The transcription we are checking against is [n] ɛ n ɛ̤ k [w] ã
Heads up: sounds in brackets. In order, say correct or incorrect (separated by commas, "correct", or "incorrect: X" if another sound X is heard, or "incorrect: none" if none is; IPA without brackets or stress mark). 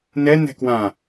correct, correct